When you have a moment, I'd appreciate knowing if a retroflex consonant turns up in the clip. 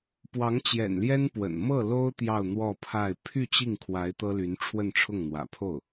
yes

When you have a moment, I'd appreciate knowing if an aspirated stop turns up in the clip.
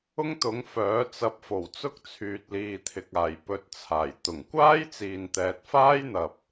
yes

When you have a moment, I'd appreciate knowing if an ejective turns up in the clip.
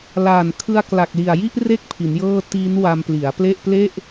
no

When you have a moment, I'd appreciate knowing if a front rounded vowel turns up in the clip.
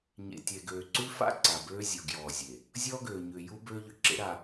yes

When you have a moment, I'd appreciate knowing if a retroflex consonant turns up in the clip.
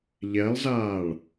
yes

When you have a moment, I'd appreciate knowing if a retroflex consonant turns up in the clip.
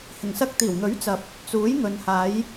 no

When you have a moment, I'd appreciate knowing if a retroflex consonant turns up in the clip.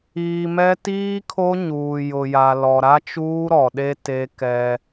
no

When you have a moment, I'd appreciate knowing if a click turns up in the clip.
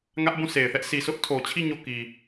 no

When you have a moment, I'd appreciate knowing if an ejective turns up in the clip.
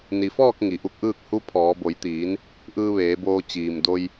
no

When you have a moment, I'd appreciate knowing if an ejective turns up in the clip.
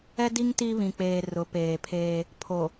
no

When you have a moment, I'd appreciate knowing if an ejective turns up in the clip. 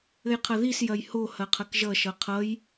no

